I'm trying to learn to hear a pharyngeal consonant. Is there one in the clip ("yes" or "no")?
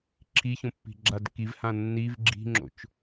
no